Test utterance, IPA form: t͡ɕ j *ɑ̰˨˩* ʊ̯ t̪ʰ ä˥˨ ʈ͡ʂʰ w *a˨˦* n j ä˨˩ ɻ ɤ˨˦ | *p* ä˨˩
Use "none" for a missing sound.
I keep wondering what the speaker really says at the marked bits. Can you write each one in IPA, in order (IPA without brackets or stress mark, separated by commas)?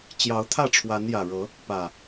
ɑ˨˦, a˨˦, p